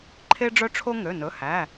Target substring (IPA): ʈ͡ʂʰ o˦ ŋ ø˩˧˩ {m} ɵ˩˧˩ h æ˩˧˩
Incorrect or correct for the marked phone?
incorrect: n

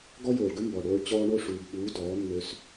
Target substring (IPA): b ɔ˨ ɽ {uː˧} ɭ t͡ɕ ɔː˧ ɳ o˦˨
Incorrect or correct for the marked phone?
incorrect: oː˧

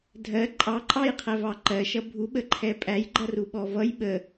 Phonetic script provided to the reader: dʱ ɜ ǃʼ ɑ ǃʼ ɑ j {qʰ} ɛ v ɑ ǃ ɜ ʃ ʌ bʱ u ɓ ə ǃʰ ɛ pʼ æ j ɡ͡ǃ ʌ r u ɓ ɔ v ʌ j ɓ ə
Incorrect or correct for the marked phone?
correct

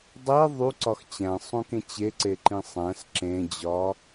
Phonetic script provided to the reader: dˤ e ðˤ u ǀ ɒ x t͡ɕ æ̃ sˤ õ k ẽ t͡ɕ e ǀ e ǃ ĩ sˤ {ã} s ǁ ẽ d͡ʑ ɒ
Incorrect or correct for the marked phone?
incorrect: æ̃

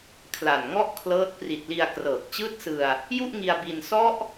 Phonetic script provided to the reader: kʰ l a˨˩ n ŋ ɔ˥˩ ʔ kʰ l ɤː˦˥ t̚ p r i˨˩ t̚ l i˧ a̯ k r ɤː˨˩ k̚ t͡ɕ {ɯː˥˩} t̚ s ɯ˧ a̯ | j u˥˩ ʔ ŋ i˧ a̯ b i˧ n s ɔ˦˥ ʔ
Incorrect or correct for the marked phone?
correct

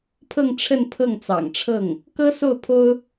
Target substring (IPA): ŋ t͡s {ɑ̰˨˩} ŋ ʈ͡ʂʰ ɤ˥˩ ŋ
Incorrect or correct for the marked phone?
correct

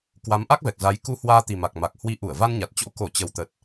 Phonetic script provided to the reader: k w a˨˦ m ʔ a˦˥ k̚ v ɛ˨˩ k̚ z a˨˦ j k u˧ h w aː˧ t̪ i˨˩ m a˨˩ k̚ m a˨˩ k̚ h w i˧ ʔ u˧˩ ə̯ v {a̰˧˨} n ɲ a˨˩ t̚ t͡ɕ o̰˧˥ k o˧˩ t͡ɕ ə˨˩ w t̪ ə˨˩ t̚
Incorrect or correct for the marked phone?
incorrect: a˧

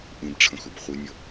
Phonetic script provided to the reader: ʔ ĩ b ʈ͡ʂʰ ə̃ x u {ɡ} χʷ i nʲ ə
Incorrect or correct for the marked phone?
incorrect: b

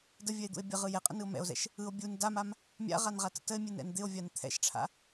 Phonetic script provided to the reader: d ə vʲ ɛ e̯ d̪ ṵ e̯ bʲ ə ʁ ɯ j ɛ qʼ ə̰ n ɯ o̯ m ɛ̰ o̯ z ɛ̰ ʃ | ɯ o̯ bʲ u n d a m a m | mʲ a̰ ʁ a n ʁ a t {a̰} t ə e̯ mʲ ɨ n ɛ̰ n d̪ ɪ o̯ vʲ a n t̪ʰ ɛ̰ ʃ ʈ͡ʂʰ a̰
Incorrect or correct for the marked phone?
incorrect: ə̰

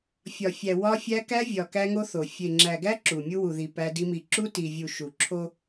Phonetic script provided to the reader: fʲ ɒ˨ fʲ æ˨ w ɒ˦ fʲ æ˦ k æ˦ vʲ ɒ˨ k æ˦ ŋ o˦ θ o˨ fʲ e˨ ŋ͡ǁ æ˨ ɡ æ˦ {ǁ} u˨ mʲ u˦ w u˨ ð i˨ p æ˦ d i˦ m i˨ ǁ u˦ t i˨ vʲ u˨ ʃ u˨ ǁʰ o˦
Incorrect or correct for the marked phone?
correct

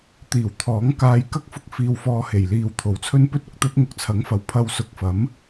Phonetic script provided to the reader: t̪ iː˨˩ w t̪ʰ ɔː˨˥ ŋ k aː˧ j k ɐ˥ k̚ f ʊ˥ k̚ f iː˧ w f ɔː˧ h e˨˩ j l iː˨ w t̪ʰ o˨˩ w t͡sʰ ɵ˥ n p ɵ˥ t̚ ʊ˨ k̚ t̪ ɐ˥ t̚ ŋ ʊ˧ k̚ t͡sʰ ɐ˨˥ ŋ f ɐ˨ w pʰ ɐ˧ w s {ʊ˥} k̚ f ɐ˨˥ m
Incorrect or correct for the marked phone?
incorrect: ʊ˨˥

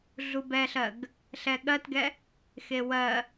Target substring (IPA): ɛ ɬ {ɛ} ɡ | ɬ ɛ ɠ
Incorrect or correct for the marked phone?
incorrect: ɜ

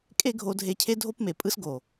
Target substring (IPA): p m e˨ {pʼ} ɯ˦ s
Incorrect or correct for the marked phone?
correct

